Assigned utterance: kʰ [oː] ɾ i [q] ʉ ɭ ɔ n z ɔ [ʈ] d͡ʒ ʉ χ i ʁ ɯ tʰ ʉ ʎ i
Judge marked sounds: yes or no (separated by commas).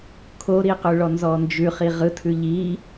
no, yes, no